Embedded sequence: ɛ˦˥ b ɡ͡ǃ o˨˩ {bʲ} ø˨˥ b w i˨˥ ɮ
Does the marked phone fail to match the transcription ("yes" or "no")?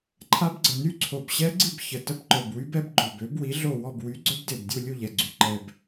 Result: yes